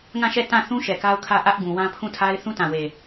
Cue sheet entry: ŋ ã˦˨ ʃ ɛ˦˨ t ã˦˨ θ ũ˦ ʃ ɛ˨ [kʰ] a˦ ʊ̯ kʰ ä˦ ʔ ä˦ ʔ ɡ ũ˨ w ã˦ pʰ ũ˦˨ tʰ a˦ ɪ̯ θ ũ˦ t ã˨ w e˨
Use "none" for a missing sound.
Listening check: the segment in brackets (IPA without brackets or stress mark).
k